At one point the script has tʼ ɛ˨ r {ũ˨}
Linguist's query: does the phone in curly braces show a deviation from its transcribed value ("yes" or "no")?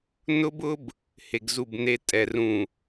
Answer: no